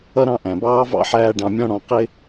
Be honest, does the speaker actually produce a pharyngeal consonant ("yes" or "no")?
yes